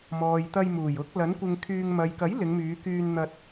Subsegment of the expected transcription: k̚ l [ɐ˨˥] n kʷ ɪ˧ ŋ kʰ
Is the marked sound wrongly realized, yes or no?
no